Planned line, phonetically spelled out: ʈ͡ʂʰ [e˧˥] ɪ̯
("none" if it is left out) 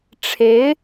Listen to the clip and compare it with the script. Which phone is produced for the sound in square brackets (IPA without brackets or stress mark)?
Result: e˧˥